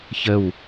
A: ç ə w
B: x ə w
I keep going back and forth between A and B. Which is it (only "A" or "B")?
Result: A